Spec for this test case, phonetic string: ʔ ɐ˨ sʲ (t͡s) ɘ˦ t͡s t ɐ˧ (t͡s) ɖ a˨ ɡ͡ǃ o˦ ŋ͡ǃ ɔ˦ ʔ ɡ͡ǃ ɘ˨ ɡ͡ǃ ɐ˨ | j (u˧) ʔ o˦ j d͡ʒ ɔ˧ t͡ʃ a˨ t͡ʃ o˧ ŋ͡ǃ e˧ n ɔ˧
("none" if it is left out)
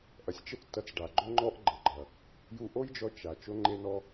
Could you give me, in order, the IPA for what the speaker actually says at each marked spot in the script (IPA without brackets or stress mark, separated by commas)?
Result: t͡ʃ, t͡s, u˧